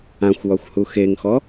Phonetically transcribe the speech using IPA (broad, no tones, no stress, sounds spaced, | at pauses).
ã xʷ w ɒ xʷ h u x e ŋ x ɔ